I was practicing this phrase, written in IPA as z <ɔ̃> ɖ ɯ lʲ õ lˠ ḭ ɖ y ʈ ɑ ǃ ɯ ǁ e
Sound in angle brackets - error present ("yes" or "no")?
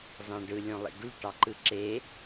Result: yes